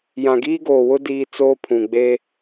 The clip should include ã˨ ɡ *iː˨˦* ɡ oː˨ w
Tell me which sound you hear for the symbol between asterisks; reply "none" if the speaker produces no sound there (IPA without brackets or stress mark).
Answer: iː˦